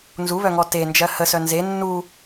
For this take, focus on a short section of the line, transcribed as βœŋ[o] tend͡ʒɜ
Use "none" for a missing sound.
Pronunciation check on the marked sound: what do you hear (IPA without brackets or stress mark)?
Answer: ɔ